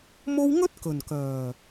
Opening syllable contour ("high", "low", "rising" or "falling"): high